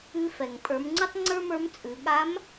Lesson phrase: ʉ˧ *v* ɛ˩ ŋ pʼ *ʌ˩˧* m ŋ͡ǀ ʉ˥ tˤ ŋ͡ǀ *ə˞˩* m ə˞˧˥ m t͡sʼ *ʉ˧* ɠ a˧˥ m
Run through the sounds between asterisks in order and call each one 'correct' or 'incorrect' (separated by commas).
incorrect, incorrect, incorrect, incorrect